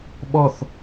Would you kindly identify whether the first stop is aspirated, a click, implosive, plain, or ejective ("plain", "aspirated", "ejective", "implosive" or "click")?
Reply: implosive